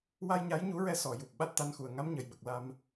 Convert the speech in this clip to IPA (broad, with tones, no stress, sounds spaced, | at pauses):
w a˧ j ɲ a˧˥ j ɲ u˧˥ ɹ ɛ˧ s ɔ˨˩˨ j u˨˩ p̚ ɓ a˦˥ t̚ t̪ a˧˥ n x u˨˩ ə̯ ŋ a˧˥ m ɲ ə˨˩˨ j ɓ ə˨˩ k̚ l a˧ m